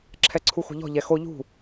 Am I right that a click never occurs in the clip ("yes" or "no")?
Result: no